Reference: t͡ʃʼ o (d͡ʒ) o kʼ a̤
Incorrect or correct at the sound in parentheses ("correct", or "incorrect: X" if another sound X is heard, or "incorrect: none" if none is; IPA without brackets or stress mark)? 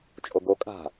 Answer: incorrect: ɡ